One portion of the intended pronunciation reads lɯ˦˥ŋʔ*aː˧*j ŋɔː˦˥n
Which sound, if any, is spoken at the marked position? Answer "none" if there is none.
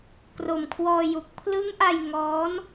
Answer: a˧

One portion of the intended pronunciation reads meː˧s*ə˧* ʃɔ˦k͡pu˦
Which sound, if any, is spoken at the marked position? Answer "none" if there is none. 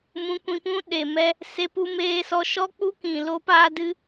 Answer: ɔ˧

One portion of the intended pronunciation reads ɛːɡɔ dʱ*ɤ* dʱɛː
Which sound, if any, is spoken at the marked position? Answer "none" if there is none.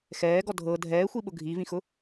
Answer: ɤ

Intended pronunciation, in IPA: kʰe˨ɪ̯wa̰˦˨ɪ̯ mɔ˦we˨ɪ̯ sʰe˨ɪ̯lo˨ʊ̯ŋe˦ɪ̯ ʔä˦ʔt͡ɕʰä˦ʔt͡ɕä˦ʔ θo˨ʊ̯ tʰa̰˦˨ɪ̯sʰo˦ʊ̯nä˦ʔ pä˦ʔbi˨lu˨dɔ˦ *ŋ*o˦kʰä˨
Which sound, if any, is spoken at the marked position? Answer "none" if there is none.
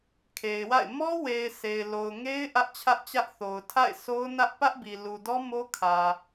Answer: m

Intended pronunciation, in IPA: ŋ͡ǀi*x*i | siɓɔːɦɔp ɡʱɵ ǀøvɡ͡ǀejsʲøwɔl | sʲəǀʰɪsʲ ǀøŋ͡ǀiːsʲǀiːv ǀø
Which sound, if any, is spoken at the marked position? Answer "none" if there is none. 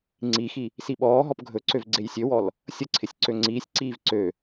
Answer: x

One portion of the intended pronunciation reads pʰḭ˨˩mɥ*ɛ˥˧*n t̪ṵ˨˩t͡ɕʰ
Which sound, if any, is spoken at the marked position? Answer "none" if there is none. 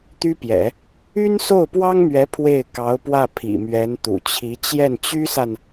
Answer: ɛ˧˥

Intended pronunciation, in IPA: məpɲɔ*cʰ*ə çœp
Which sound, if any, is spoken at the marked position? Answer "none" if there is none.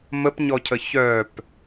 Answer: cʰ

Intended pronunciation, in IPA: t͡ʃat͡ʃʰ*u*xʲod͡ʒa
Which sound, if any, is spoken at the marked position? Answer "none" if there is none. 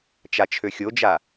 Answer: ø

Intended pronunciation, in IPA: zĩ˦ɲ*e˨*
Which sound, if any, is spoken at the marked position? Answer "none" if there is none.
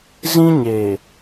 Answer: e˨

